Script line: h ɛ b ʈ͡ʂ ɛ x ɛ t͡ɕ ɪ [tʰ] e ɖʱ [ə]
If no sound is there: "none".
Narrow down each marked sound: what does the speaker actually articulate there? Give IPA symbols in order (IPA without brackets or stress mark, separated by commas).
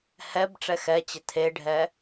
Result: tʰ, ɛ